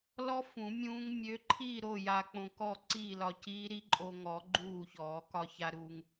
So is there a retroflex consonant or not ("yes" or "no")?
no